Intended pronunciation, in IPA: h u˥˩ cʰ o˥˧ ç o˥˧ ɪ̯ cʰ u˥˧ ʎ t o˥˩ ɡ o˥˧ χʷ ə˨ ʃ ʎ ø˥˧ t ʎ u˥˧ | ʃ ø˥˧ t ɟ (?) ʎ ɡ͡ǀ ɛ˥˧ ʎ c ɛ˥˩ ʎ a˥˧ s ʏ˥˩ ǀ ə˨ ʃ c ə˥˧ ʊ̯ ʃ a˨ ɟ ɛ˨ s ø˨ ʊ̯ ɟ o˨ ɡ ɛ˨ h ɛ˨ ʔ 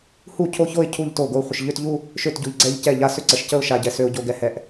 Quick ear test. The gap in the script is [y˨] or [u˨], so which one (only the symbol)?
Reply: u˨